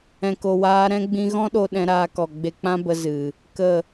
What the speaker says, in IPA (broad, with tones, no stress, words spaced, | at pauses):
ɛ̃˨ko˨waː˧ ɾɛ̃˧ɡ͡bĩ˧ɣɔ̃˦ɗo˧ ɗɛ̃˧ɾaː˧kɔ˨ ɡ͡be˧k͡pã˦bə˧ zɨ˨ | kə˦˨